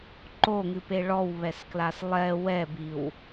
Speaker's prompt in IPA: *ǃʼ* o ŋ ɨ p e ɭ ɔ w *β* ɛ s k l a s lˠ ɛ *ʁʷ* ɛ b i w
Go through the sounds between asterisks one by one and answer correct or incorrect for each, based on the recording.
incorrect, correct, incorrect

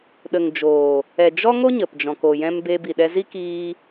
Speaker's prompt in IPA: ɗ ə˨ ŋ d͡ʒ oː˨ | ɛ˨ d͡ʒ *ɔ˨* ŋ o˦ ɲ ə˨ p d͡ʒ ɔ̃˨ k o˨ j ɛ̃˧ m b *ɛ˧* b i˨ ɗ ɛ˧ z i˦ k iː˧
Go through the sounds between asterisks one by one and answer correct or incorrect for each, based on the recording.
incorrect, incorrect

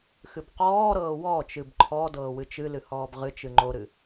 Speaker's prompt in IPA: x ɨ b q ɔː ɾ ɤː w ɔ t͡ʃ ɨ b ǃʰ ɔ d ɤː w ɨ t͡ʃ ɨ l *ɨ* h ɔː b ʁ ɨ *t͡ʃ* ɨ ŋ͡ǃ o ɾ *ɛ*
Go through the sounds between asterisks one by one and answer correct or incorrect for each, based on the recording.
correct, correct, incorrect

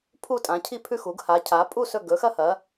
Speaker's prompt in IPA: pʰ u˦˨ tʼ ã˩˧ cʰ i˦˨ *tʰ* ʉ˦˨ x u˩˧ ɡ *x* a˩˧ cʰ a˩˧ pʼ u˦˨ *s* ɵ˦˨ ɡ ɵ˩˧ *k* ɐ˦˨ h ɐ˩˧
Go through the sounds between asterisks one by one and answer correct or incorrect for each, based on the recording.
incorrect, incorrect, correct, incorrect

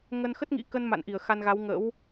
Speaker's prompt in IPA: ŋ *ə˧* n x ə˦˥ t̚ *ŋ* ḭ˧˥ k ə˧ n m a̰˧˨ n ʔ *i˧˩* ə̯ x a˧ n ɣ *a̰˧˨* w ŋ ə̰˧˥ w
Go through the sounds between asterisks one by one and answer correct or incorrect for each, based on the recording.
correct, correct, correct, incorrect

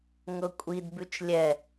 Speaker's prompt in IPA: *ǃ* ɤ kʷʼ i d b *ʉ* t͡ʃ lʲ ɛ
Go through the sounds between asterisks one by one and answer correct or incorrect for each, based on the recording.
incorrect, correct

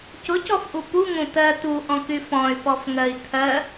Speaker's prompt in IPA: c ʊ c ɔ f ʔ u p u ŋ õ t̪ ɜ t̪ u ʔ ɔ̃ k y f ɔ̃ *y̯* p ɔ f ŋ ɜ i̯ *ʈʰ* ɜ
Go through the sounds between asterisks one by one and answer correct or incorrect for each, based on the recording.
correct, incorrect

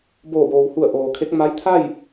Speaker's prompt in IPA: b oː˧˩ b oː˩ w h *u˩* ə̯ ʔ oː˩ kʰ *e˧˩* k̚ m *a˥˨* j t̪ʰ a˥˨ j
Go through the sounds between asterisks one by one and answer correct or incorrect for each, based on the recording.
incorrect, incorrect, incorrect

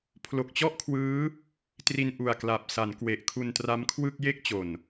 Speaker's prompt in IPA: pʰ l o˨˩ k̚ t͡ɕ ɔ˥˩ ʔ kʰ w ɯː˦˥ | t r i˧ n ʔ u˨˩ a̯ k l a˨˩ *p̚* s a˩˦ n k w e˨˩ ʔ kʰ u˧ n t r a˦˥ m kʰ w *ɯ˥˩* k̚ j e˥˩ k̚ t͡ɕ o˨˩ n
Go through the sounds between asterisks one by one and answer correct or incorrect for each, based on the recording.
correct, correct

